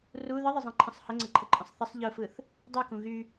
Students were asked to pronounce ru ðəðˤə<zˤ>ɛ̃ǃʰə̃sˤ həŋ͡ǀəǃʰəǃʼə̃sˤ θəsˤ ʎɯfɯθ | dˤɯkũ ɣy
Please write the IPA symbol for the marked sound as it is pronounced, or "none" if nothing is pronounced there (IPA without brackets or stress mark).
zˤ